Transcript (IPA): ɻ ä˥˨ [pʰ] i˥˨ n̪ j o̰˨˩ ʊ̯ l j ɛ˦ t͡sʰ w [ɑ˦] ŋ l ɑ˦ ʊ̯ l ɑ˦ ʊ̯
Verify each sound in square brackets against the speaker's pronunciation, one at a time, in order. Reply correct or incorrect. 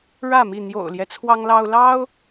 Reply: incorrect, correct

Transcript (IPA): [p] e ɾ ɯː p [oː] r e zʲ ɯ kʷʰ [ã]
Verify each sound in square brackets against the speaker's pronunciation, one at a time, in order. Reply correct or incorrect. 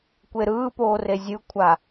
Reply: incorrect, correct, incorrect

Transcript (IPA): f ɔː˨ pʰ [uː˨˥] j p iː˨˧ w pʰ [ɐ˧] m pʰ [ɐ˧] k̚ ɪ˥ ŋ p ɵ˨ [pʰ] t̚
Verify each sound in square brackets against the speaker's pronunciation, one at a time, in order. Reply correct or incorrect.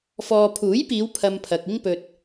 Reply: correct, correct, incorrect, incorrect

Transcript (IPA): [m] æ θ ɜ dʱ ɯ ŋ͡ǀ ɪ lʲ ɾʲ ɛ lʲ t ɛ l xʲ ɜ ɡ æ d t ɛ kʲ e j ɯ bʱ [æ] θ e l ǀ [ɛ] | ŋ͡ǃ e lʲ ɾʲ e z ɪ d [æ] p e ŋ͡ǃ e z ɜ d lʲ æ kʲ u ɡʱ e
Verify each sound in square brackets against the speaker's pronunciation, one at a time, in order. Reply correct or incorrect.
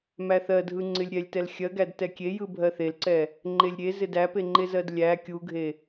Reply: correct, incorrect, correct, correct

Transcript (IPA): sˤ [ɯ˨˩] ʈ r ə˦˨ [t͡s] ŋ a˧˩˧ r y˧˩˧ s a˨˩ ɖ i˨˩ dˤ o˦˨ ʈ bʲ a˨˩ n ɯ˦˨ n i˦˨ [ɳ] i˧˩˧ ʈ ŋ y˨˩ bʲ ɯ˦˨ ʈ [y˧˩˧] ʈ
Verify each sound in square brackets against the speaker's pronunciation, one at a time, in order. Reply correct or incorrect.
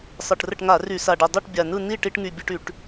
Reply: correct, incorrect, incorrect, correct

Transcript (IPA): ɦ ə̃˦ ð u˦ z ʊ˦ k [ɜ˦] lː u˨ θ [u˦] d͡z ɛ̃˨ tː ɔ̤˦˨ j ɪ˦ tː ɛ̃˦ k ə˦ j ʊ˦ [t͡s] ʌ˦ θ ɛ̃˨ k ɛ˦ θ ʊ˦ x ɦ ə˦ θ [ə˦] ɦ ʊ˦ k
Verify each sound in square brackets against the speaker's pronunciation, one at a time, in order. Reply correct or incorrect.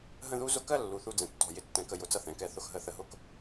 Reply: correct, correct, correct, correct

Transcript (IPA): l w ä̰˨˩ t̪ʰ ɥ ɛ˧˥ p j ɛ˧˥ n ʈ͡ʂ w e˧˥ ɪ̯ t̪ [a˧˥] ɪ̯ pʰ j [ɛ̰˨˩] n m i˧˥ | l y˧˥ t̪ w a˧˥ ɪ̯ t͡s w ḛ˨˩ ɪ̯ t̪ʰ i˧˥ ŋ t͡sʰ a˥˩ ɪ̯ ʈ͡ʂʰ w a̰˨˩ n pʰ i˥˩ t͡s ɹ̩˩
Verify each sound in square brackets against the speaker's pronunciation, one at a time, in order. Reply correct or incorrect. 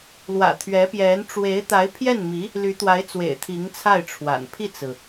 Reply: correct, incorrect

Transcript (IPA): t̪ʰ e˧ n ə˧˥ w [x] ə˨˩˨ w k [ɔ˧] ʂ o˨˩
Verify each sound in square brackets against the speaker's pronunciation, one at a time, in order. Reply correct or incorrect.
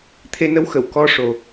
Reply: correct, incorrect

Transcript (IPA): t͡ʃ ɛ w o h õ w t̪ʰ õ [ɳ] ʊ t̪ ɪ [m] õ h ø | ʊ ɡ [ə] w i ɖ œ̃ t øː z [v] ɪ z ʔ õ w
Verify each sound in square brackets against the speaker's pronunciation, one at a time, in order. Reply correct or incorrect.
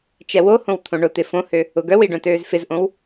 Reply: correct, incorrect, incorrect, incorrect

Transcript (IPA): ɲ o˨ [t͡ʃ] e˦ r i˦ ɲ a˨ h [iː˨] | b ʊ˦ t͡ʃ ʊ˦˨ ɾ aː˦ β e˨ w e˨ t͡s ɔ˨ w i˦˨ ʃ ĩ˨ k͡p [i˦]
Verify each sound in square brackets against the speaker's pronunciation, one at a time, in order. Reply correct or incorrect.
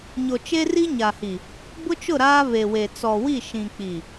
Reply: correct, incorrect, incorrect

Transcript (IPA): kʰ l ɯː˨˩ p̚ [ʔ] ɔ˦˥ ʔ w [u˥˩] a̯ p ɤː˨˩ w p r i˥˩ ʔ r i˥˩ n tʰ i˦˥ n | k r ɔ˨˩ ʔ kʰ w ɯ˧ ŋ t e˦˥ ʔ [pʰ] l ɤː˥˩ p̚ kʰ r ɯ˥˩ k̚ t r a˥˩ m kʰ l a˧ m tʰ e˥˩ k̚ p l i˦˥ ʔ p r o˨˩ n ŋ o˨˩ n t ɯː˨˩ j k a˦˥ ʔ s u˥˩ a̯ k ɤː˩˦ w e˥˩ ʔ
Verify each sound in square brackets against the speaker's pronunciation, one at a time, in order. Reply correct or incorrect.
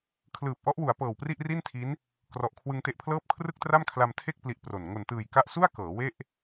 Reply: correct, incorrect, correct

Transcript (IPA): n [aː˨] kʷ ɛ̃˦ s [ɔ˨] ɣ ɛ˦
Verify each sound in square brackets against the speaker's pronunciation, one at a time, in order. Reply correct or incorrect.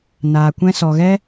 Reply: correct, correct

